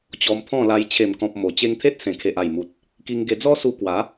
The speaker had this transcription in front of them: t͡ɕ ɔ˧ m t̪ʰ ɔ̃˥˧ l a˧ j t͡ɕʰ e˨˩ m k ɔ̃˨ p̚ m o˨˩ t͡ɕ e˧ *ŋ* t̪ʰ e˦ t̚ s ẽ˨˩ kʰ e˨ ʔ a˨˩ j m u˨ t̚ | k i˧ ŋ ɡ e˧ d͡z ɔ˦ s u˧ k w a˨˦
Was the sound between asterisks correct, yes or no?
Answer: yes